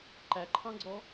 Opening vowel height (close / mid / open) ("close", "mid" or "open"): open